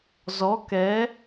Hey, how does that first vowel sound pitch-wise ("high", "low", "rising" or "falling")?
rising